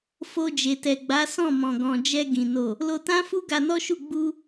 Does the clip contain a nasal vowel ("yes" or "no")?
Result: yes